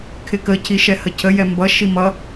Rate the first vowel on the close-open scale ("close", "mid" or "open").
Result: close